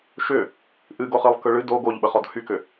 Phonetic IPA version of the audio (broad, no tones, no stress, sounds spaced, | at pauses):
ʃ ʏ | ʔ ɨ ɡ o χ ɨ lˠ k ɯ ɭ ɨ d o ɡ o ʎ ɓ ə χ ɔ d h y k ʏ